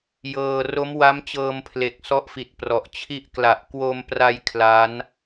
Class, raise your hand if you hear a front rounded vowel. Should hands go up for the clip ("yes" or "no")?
no